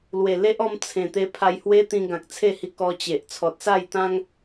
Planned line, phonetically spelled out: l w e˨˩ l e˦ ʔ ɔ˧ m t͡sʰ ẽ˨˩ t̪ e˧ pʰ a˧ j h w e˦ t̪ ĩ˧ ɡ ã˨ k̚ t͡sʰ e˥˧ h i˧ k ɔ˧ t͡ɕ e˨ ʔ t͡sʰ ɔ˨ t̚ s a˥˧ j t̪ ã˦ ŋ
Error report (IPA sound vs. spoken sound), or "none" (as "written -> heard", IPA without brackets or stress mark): none